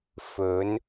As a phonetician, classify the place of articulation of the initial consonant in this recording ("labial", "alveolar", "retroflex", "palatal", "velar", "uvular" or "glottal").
labial